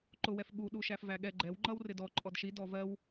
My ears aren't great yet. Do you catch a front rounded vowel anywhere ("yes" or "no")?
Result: no